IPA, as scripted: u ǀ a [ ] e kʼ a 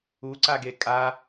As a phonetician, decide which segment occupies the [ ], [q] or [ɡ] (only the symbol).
ɡ